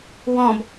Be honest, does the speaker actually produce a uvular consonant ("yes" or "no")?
no